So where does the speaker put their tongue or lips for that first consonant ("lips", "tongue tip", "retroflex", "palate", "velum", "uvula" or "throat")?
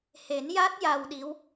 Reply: throat